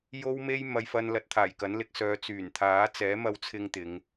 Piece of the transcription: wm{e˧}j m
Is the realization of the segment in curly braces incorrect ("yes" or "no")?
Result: no